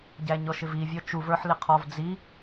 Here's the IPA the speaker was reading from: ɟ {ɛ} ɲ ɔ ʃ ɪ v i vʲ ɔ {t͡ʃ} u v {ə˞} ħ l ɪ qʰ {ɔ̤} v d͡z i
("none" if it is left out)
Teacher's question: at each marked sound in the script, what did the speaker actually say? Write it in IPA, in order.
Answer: æ, t͡ʃ, ə˞, ɔ

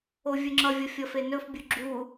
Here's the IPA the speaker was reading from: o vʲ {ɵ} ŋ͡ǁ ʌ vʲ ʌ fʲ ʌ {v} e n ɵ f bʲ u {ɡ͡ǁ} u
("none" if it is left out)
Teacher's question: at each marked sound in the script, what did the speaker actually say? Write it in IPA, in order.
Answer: ɵ, f, ɡ͡ǁ

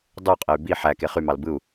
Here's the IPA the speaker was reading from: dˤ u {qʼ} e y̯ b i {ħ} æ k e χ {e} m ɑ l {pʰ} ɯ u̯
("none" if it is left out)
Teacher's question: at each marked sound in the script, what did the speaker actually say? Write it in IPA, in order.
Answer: qʼ, ħ, y, b

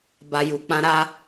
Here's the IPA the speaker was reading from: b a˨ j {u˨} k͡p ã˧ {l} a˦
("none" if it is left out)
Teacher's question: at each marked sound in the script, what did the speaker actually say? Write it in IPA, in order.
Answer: u˨, ɾ

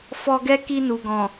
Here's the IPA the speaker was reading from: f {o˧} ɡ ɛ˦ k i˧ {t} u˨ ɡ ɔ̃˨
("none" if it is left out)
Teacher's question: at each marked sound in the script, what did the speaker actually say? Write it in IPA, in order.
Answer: ɔ˧, n

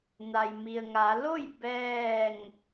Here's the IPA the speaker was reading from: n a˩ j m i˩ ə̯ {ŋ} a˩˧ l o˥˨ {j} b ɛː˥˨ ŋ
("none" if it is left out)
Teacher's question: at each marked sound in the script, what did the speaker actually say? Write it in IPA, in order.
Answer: ŋ, j

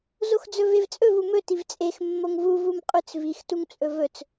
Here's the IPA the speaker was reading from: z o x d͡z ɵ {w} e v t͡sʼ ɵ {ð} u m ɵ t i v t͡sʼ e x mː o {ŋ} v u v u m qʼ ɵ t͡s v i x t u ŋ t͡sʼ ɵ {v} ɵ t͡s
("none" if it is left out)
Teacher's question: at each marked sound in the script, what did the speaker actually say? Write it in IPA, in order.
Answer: v, v, ŋ, v

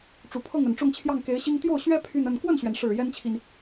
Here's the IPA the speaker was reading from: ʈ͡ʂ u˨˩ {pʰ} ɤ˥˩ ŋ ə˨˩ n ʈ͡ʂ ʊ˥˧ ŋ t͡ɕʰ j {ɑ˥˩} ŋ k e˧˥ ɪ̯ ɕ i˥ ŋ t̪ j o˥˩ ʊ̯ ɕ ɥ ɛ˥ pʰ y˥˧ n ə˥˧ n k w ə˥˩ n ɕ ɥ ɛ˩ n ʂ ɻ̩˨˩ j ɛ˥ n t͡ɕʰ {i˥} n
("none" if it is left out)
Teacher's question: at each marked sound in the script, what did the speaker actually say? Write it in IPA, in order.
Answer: pʰ, ɑ˥˩, i˨

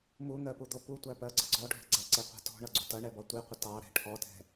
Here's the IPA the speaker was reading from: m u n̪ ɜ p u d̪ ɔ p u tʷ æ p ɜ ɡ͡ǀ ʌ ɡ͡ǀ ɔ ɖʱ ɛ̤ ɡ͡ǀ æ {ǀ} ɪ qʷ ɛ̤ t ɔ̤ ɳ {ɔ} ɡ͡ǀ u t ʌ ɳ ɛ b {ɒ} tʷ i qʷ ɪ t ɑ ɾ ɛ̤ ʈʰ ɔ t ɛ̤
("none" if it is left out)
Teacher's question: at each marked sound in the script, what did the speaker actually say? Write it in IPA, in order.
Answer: ǀ, ʌ, ɒ

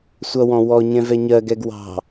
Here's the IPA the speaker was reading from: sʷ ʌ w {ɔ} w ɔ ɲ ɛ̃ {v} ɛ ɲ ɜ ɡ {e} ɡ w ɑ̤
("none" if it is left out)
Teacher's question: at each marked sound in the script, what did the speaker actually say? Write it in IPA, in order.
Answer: ɔ̃, v, ɛ

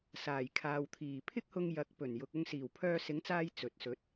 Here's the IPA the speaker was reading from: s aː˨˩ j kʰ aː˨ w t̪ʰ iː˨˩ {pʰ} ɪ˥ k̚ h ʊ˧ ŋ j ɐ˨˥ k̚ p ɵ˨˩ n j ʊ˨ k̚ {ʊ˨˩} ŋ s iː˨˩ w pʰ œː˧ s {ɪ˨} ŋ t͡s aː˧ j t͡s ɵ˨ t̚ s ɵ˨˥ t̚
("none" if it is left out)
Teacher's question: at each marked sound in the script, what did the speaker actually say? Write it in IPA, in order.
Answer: pʰ, ʊ˧, ɪ˨˥

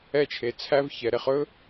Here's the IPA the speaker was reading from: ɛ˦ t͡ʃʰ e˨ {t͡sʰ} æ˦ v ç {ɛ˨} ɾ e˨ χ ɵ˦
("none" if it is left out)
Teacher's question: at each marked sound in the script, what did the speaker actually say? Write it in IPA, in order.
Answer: t͡sʰ, ɛ˨

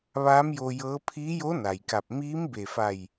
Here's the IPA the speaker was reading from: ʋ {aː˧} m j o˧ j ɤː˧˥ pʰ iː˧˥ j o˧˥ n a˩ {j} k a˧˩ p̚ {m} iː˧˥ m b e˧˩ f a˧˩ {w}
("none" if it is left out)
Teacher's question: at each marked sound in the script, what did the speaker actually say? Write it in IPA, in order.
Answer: aː˧˥, j, m, j

